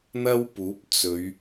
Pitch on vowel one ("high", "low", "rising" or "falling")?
high